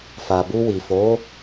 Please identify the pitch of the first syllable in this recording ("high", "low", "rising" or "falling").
low